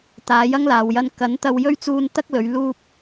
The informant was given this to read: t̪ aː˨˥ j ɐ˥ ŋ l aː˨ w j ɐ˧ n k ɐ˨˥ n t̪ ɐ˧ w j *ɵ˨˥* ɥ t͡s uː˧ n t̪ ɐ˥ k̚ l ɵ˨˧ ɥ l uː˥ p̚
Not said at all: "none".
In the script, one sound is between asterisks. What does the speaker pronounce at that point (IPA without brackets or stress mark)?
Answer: ɵ˥